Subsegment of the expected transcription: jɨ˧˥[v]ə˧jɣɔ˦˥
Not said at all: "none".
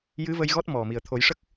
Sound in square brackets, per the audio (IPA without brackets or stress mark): v